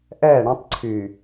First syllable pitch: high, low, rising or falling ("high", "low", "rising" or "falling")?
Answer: falling